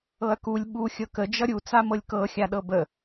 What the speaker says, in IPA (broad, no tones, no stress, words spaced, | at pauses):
ɤɐ̯kulʲ ɓu xʲɤkə d͡ʒʌɾʲu t͡samɤlʲkɤ xʲaɗɤbə